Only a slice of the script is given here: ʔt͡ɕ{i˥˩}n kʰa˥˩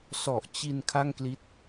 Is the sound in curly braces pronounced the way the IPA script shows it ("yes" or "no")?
no